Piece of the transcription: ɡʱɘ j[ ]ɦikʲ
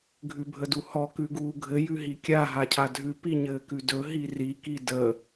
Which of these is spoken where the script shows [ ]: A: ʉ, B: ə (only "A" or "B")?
A